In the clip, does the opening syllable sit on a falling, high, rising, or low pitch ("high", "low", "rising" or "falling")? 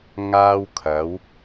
high